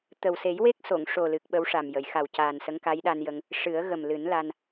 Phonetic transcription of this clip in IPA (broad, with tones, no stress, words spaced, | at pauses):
t̪ə˨˩wse˨˩˦jwe˦˥k̚so˨˩˨ŋ ʂo˨˩lɨ˨˩k̚ ɓə˧˥wʂa˨˩m jə˨˩˨jxa˨˩w caː˨˩nsə˧˥ŋka˧˥j ɗa˧njə˧ŋ | ʂɨ˨˩˦ə̯ɣə˨˩mlɨ˨˩˦n la˧n